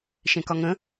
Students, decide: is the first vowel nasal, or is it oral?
nasal